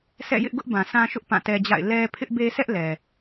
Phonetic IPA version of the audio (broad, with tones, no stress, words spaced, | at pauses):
sɛ̰˦˨jɪ˦ʔ ɡʊ˦ʔ bã˨ sʰã˦ʃʊ˦ʔ pã˦˨tɛ˦d͡ʑa̰˦˨ɪ̯ lɛ˦ pʰɪ˦ʔbe˦sʰɛ˦ʔ lɛ˨